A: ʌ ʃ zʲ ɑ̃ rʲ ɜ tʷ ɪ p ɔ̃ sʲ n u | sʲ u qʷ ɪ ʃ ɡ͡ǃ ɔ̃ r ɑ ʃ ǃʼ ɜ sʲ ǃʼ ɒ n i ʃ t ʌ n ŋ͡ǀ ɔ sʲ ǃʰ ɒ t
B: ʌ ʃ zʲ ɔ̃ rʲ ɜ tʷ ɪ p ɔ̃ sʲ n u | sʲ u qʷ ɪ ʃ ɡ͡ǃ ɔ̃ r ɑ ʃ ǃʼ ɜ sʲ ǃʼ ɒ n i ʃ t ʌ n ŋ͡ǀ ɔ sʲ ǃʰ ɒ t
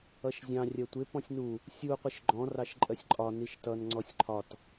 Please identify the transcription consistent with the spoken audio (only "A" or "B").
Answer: A